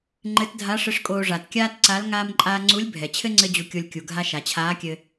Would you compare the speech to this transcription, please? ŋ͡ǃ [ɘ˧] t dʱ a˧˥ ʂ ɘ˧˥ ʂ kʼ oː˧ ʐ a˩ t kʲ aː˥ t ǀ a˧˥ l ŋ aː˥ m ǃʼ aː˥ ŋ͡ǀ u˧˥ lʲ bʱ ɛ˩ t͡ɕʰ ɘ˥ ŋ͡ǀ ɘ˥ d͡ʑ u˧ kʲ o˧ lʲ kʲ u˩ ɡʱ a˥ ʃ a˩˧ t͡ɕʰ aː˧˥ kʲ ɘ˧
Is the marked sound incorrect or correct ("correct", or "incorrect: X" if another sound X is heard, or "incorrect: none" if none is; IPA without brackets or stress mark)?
incorrect: ɘ˧˥